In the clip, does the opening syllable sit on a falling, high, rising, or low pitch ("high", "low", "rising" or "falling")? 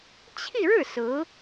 falling